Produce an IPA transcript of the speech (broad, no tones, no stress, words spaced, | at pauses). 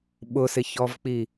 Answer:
ɓʊsɪçɔvk͡pi